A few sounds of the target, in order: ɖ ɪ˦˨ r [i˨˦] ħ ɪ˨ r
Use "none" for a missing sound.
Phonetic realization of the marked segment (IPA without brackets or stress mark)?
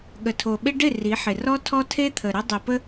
i˨˦